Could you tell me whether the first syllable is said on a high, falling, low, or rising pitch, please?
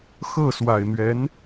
falling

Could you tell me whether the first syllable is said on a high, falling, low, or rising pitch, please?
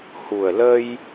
low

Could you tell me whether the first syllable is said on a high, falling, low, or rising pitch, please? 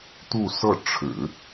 falling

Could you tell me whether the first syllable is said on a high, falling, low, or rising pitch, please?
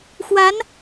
rising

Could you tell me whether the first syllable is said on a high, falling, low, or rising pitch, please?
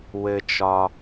low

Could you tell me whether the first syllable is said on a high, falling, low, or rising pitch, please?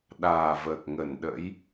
low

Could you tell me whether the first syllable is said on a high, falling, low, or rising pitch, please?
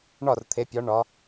falling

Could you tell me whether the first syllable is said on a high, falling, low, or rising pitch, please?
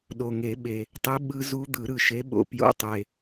low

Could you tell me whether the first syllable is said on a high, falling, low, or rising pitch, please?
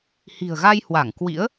low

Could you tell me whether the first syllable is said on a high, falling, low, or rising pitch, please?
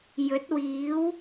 rising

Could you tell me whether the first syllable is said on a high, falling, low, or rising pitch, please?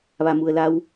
low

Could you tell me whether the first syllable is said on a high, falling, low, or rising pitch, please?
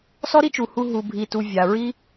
high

